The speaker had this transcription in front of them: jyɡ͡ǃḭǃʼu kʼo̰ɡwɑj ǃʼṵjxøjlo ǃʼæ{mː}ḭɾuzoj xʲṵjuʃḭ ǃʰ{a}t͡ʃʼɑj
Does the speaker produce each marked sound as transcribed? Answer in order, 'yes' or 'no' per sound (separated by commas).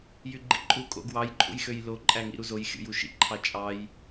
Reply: no, no